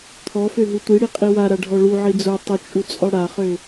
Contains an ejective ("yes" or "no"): yes